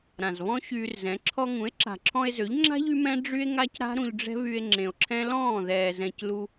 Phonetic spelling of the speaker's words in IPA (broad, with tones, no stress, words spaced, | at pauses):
ɾã˨zβɔ̃˦ɕyː˧rzɛ̃˨˦ ǁʰɔ˧ŋũ˨˦e̯ǁa̤˨ǁʰɔ̃˧e̯ zø˨˦ʎŋ͡ǁa̤˦ ʎy˦mɛ̃˦ ɖ͡ʐy˦e̯ŋa˦c ɾa̤˦ɾũ˧ʎɖ͡ʐɛ̤˦βy˧e̯ ŋ͡ǁẽ˨o̯ǁʰɛ̃˦ lɔ̃ː˦˨ ðɛː˨zɛ̃˨clu˧